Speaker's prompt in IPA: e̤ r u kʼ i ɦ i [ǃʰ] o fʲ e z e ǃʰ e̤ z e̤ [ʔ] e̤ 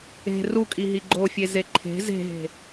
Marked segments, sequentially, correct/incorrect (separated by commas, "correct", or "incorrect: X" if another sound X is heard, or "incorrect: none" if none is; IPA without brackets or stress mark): incorrect: ɡ͡ǃ, incorrect: ɦ